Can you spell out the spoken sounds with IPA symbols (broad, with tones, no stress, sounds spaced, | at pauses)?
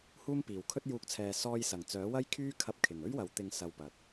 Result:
h uː˥ m p iː˨ w kʰ ɵ˥ t̚ j uː˨˥ k̚ t͡sʰ ɛː˨ s ɔː˧ j s ɐ˨˩ ŋ t͡s œː˨˥ w ɐ˥ j kʰ yː˥ kʰ ɐ˧ p̚ kʰ ɪ˨˩ ŋ ɵ˥ ɥ w ɐ˨˥ w t̪ ɪ˧ ŋ s ɐ˧ w p ɐ˨ t̚